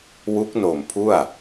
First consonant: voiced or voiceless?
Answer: voiced